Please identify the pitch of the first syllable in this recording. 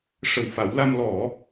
low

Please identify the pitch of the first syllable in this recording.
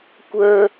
high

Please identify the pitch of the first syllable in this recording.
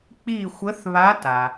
falling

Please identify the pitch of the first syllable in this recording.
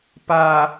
low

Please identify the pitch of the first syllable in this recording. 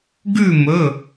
falling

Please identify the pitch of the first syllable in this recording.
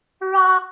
high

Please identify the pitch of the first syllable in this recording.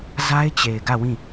high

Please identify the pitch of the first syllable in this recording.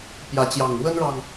rising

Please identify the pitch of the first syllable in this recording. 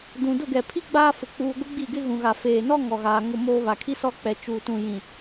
low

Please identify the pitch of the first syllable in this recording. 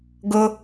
high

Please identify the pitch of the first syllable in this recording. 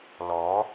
rising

